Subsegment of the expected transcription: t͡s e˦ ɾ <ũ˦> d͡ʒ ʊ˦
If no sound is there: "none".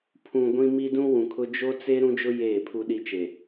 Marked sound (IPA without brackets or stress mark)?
ũ˦